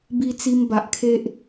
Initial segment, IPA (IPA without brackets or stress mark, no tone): b